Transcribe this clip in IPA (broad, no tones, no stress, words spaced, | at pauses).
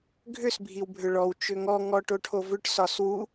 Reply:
ɡʱʏs bʱiwbʱʏɭɔw t͡ʃʏŋɔ ŋɔʈoʈʰovʏʈ sɒswu